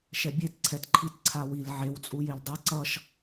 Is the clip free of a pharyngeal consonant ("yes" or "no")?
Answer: no